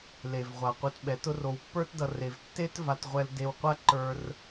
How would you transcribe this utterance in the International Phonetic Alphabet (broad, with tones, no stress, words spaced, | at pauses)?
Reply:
le˨vʁʷa˨ qʷe˧tɓɛ˨˦tʊ˦ro˧w pːə˞˦tdʌ˧ re˧v tːe˦t va˧tʁʷɛ˧l de˧wqʷa˦ǃə˞˧r